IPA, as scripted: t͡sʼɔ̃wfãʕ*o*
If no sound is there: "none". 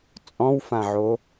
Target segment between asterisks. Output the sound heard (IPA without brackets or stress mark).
o